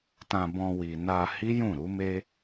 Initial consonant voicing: voiceless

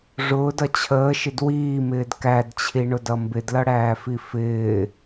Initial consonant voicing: voiced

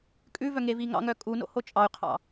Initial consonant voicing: voiceless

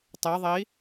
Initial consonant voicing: voiceless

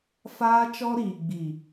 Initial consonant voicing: voiceless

